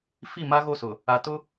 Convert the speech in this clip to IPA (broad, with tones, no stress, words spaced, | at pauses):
fi˦˨ma˦ɣo˦˨sʊ˨ | a˨tʊ˦